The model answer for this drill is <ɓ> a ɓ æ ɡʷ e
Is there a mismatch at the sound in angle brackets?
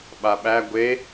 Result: no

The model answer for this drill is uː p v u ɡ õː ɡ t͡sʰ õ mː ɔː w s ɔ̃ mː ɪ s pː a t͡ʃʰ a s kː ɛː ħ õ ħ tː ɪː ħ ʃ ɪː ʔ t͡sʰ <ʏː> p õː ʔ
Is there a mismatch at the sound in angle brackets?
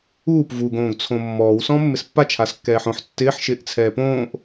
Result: yes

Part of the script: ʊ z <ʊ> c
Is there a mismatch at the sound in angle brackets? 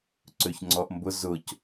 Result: no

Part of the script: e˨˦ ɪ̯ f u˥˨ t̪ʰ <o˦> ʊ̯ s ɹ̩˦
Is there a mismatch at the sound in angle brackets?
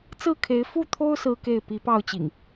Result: no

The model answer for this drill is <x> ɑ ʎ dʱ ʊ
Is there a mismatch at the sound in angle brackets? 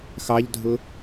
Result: no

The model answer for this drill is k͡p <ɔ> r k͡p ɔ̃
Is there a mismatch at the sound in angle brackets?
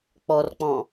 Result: no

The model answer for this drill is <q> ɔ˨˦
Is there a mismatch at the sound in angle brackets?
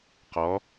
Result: no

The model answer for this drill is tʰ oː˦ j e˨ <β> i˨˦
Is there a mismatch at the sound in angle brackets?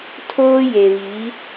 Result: no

